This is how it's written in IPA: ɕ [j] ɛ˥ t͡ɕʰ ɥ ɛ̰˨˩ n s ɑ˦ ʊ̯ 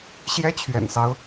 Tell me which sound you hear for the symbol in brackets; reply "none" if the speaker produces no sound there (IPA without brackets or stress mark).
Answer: j